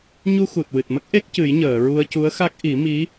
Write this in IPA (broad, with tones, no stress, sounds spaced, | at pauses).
ɲ u˧ x u˨˩ t̚ w ɨ˨˩ t̚ m ə˦˥ k̚ ʔ e˦˥ k̚ c ɨ˨˩˦ j ɲ əː˨˩˨ ɹ u˧ ə̯ c u˧˥ ə̯ x a˦˥ k̚ ʔ i˨˩˦ m i˧˥